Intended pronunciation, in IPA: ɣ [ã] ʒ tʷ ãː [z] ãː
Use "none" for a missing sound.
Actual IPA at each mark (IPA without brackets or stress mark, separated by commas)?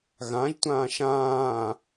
ã, ʃ